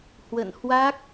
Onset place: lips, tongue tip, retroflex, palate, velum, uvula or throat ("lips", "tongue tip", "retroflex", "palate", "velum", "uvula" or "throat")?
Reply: throat